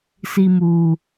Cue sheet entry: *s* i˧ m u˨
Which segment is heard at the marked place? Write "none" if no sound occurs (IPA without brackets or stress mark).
s